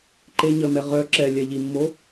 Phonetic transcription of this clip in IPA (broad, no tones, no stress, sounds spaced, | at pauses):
ǃ e ɲ ə m ɛ ʁ œ ǁ ɛ lʲ ɛ ʎ i mː o